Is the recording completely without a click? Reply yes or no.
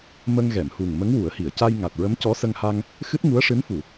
yes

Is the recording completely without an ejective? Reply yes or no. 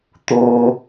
yes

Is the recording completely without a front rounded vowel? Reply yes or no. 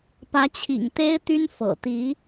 no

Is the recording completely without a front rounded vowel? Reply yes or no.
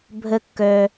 no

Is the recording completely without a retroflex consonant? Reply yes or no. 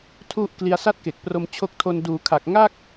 yes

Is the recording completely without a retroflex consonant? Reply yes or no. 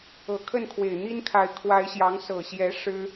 no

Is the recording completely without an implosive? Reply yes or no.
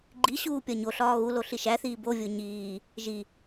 yes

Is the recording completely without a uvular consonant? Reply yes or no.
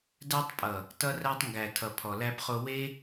no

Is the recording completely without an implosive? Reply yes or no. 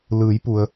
yes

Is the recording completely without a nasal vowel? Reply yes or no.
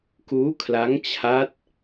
yes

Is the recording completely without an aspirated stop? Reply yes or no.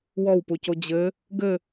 yes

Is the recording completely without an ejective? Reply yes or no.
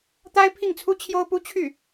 yes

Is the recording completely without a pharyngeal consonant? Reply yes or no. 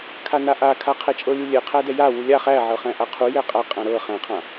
no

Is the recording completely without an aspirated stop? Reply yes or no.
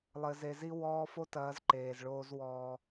yes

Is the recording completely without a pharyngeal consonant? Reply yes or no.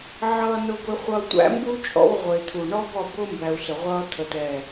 no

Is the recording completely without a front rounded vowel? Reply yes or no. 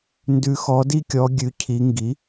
yes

